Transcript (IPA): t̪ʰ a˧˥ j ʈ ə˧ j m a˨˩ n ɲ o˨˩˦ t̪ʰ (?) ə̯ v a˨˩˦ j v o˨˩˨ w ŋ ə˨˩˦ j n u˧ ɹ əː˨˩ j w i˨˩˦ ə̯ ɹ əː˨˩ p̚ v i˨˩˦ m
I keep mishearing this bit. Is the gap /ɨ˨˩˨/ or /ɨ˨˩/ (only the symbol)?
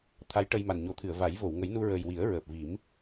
ɨ˨˩˨